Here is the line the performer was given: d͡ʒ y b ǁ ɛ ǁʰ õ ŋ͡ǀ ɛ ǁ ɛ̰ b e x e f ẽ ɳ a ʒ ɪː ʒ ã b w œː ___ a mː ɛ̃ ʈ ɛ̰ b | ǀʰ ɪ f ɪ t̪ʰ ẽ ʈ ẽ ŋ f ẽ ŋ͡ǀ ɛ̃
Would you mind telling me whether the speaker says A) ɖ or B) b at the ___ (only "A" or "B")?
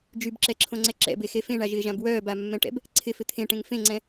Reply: B